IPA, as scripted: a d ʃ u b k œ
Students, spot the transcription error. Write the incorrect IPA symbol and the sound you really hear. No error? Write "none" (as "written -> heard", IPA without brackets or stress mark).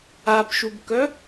d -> b